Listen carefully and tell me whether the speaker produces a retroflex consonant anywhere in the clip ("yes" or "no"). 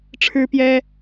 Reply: yes